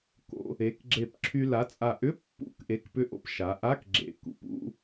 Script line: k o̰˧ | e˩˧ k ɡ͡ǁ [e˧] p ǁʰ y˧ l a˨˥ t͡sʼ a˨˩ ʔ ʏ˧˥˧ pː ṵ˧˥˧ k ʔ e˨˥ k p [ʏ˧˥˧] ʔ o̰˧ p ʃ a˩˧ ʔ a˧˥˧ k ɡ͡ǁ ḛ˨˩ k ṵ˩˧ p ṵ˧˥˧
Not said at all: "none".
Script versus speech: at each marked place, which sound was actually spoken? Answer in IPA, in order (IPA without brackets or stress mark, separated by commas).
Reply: e˨˩, ʏ˧